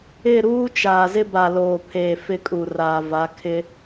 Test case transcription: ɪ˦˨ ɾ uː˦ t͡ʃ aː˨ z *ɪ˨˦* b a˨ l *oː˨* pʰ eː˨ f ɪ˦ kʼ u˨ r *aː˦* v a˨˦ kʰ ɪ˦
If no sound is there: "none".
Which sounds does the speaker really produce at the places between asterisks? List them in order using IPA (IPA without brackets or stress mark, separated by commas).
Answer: ɪ˦, oː˨, aː˨